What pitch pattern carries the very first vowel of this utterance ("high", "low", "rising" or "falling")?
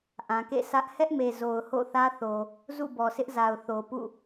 low